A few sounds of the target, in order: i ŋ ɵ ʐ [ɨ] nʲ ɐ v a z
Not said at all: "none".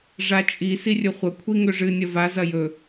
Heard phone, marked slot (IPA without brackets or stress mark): ɨ